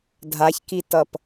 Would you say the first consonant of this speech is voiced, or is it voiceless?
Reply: voiced